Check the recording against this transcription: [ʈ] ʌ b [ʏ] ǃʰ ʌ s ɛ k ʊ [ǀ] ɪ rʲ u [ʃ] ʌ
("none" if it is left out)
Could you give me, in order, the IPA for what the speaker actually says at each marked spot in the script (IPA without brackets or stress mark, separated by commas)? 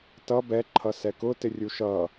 t, ɛ, t, ʃ